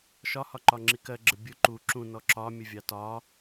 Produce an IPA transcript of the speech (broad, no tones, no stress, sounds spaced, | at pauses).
ʃ ɒ h ɒ ǃ ɒ ŋ͡ǁ i k ɜ ɡ͡ǁ ə bʲ ʊ ǃ u ǁ ũ n ɔ ǁ ɒ mʲ ə vʲ ɑ t ɒ